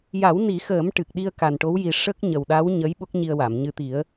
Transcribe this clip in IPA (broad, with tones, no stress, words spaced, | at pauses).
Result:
ja˨˩˦w ni˨˩˦xəː˨˩˦m ʈɨ˨˩k̚ɗi˧ə̯ka˨˩n ʈo˧˥wji˨˩ ʂə˦˥k̚ ɲə˨˩wɗa˧˥w ɲə˧˥j ɓo˦˥k̚ɲi˧ə̯wa˨˩˨mɲɨ˧ t̪i˨˩˦ə̯